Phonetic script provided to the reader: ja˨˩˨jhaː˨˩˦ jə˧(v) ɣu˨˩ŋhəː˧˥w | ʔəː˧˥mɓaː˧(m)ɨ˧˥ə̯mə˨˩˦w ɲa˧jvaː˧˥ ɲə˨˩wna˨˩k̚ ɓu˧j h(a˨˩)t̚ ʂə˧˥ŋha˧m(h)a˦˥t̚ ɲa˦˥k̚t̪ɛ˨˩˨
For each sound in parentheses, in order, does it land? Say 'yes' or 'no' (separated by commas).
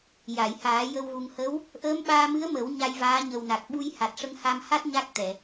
no, yes, yes, yes